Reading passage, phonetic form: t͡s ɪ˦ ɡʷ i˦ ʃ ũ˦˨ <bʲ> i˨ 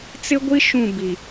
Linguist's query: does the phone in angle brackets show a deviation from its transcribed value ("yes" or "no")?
yes